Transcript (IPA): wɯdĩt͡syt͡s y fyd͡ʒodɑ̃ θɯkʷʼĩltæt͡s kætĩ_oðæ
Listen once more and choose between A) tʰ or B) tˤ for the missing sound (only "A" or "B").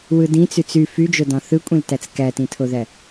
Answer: A